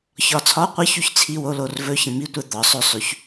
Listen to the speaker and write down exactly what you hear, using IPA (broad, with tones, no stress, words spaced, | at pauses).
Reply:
çɒ˧ t͡sʰɒ˧˥˧qʷɤ˦˥çy˧ç t͡sʰi˧˥˧wo˧˥˧ lo˧rvɵ˧˥˧çə̃˧mi˧˥˧ tʷɛ˧ d̪ɒ˩˥sˤɵ˧sˤy˩˥ç